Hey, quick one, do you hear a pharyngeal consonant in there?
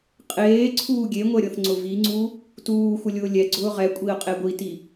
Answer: no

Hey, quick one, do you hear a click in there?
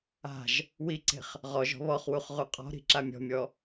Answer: yes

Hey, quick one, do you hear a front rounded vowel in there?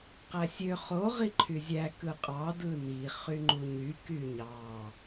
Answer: yes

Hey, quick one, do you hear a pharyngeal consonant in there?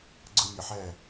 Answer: yes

